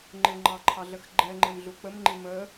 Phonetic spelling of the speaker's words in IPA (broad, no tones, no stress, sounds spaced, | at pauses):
ŋ͡ǃ ɪ ŋ͡ǃ ɑ ǃʰ ɑ ɮ ə x ɡ͡ǃ ɛ ŋ͡ǃ ɪ m ɮ u k͡p ə m ŋ͡ǃ i m ə